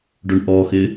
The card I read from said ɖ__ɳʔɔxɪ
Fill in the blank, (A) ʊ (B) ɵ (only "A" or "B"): A